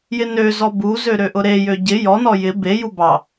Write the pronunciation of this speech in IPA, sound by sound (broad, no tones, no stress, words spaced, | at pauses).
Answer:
jɪnøzɔ buzø ɾøʔʊɾejø ɟɪ jɔnɔ jɪ beju bɑ